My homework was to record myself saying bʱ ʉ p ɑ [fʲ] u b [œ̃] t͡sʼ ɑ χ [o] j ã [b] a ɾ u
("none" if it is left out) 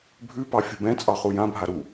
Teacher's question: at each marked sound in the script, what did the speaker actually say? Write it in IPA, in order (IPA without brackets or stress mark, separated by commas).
fʲ, ɛ̃, u, bʱ